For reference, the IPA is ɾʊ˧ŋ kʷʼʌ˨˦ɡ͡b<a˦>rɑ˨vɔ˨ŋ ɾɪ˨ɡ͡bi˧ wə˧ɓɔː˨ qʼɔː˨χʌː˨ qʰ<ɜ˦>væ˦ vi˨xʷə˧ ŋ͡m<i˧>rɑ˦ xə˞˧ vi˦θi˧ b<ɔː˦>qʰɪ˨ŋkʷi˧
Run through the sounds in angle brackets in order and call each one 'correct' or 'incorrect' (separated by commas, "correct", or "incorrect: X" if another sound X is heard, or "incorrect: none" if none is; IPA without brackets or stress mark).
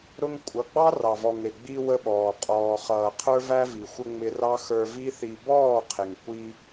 incorrect: ɑ˦, incorrect: ə˞˦, incorrect: ɪ˧, incorrect: ɔː˦˨